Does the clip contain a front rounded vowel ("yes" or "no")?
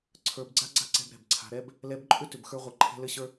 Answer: yes